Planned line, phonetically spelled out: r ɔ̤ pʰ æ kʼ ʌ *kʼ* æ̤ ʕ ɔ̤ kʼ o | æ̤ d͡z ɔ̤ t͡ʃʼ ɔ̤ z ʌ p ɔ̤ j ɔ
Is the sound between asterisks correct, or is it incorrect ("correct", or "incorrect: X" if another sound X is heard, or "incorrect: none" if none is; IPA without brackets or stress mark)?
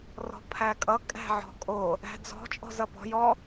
correct